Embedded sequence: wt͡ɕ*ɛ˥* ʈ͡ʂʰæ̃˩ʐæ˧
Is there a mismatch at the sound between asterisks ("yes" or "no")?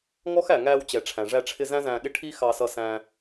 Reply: yes